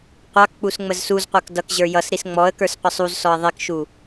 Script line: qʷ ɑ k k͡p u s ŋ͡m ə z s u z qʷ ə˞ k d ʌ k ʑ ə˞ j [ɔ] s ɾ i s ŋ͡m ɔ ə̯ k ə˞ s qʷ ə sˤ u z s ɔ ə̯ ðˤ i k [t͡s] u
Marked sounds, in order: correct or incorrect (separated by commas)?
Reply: incorrect, incorrect